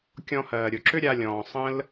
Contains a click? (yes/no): yes